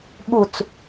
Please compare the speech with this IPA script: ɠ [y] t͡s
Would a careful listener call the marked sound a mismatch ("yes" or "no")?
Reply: yes